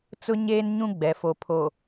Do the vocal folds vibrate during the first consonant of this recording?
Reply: no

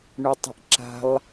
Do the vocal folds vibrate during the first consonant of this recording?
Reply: yes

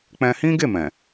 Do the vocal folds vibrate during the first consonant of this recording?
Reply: no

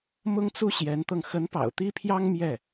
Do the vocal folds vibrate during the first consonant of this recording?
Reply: yes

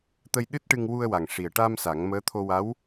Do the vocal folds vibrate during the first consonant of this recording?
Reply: no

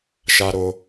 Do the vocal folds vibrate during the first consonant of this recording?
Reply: no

